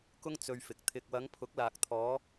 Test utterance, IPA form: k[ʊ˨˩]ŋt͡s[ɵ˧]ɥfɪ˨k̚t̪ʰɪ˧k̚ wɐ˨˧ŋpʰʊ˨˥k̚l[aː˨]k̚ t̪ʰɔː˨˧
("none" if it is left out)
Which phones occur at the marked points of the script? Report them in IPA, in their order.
ʊ˥, ɵ˧, aː˨

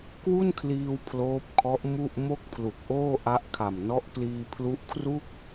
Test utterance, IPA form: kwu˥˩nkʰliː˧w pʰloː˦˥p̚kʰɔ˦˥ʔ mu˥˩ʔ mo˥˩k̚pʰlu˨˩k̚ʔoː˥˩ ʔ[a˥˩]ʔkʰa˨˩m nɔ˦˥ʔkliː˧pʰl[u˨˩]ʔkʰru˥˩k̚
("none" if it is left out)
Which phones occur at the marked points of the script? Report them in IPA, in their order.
a˦˥, u˦˥

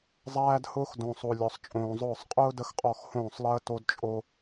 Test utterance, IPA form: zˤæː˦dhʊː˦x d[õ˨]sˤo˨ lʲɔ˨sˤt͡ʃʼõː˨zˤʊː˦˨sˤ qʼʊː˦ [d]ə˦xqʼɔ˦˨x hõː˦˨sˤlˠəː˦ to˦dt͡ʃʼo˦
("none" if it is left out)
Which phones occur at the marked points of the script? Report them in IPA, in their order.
õ˨, d

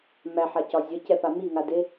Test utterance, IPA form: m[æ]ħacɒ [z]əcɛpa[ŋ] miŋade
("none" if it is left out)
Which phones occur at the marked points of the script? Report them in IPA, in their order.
æ, zʲ, none

